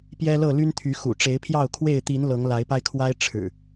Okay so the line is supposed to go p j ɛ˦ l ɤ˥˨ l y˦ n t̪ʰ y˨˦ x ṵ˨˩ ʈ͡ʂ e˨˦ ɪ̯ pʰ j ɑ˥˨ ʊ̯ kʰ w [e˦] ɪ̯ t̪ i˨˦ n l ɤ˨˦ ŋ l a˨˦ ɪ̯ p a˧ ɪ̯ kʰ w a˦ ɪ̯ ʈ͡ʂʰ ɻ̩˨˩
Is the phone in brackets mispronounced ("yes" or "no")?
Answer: yes